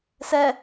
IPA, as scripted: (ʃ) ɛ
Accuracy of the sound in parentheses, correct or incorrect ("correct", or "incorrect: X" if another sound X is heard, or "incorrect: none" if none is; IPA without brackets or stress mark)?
incorrect: s